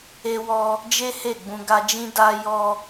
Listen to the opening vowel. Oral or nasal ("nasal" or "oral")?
oral